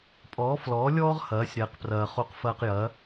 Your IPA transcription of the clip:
pʼ ɔː˩˥ f l ɔː˩˥ lʲ ɔː˥ ʁ h ɐː˩˥ sʲ ɾ ɛː˩ q p r ɐː˩ χ o˧ q f ɐː˧ q j ɐː˩˥

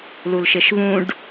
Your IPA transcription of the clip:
l u l ʃ ɪ ʃ v ũ ɖ

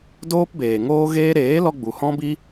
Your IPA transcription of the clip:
d oː˦ p b eː˨ ŋ oː˦ ɣ eː˦ ɾ eː˨˦ l ɔ˧ ɡ͡b u˨ h ɔ̃˦ b i˦

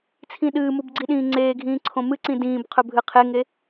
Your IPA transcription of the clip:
t͡sʰ ĩ ɗ ɨː m u b ɡ͡ǀ i ɗ ĩː ŋ͡ǀ eː ɡʱ ĩː ǀʰ õ m ɨ ǀ ĩ d ĩː b qʰ ɵ bʱ ɨ qʰ e ŋ e

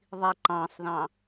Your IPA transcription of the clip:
ðˤ i ǃ ɑ̃ sˤ ð ɑ̃

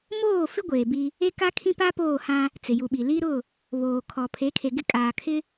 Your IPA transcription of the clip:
m oː˦˨ f ɪ˦ ɡʷ eː˨ b i˦ | e˦ k a˦ kʰ ĩ˦ p a˦ p oː˦˨ h ã˦ | t͡s ɪ˨ j u˨ ɓ i˨ l i˦ ɾ ʊ˦˨ | β oː˨ kʰ ɔ˨ pʰ e˨˦ kʰ e˨ ɡ ɪ˦ kʼ aː˨ kʰ ɪ˦

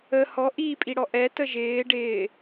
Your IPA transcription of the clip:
ə h ɔ ʔ iː pʼ i ɽ ɔ ʔ ɛ t ə ʒ ɪː ɖ ɪː

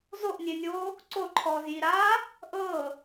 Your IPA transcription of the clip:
z o ʔ nʲ e nʲ oː | ǀ o ǃʰ ɔː z j i ɾ aː | ʔ ɤː

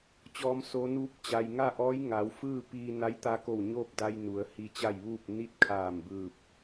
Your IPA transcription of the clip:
t͡ɕ ɔː˩˧ m s oː˩˧ n uː˧˥ p̚ t͡ɕ a˩ j ŋ a˥˨ ʔ ɔː˧˥ j ŋ a˩˧ w f ɯː˥˨ p iː˧ n a˧˥ j t̪ a˧ k o˧˩ w ɲ oː˥˨ p̚ d a˧ j n u˩˧ ə̯ h i˧ t͡ɕ a˥˨ j ʋ uː˥˨ p̚ n i˥˨ t̚ kʰ aː˧˩ m b ɯː˧˩ p̚

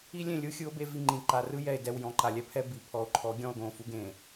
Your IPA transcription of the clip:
i˦ lʲ ẽ˦˨ lʲ ɯ˦ xʲ ɯ˦ o̯ b e˦ v i˦˨ ŋ͡ǃ ĩ˨ ǃ a˨ r ɯ˦ j ɛ˨ e̯ d ɛ˨ w j ɔ̃˨ ǃ a˨ lʲ ɛ˦ pʰ ɛ˦ b i˨ pʰ ɔ˨ o̯ ǃʰ ɔ˨˦ ɡʲ ɔ̃˦˨ o̯ ɡ õ˦˨ f u˦ ɡ ẽ˨

